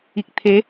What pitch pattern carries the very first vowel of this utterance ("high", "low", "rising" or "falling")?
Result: low